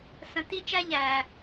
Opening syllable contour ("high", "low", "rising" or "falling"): low